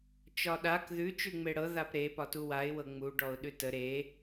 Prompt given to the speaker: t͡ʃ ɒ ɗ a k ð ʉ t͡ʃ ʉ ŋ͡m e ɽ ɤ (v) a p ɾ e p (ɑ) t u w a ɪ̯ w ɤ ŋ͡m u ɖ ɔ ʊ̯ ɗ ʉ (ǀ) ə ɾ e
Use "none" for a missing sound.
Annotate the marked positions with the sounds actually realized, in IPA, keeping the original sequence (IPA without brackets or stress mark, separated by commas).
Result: ð, ɒ, t